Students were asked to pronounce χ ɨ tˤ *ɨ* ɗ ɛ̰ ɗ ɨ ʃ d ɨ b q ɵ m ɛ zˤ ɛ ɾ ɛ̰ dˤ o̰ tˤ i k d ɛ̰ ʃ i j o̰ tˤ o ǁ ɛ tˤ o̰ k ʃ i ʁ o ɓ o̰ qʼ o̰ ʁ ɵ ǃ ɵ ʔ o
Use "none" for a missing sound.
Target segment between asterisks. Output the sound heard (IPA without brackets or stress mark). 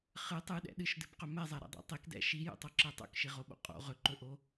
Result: ɨ